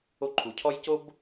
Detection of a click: present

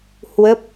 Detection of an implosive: absent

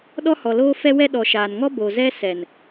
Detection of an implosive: present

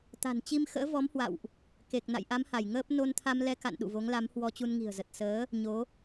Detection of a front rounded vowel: absent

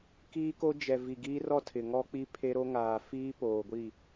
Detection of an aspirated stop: present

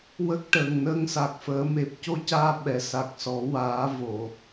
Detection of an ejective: absent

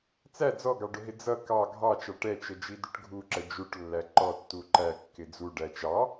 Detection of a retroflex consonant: present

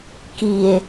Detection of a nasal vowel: absent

